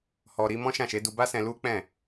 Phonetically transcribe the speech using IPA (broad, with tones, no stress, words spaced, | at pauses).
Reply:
hɔ˨ ɾi˨˦ mɔ̃˦ʃã˦˨ʃe˨˦ du˧ba˦sɛ̃˧ lu˦k͡pɛ̃˦˨